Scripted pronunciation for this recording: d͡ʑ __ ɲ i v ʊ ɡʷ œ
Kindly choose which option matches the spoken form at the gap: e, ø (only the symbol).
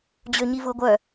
ø